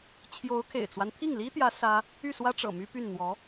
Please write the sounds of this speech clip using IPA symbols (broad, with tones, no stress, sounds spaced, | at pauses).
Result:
t͡ɕʰ j o˧˥ ʊ̯ kʰ ḛ˨˩ ɪ̯ t͡s w a˦ n t̪ʰ i˥˩ ŋ l i˥ t̪ j ä˧˥ s ä˥ | y˥˩ s w ä˥ ʈ͡ʂ ɤ̰˨˩ m y˥ p y˥˩ n n̪ w ɔ˧˥